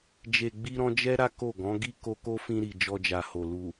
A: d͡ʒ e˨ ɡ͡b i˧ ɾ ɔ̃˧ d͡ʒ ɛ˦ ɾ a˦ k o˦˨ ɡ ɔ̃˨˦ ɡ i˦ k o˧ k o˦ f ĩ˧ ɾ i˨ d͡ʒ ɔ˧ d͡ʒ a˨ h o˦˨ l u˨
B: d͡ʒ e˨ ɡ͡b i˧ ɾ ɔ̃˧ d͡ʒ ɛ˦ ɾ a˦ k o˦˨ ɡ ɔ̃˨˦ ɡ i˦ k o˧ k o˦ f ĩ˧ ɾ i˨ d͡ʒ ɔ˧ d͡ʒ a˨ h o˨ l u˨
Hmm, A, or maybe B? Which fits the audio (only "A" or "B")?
B